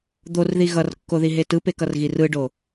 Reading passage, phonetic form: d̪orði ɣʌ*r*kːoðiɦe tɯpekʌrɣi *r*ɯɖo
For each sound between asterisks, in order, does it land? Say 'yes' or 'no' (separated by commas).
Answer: yes, yes